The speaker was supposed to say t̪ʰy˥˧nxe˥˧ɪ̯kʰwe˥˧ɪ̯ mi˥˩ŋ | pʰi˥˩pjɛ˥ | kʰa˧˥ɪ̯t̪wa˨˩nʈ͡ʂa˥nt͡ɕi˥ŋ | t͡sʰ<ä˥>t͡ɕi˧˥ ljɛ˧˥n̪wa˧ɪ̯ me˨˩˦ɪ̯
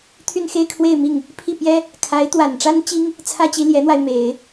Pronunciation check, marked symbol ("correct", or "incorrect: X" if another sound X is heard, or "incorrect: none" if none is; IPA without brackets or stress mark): correct